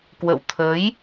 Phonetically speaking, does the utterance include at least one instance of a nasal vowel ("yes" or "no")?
no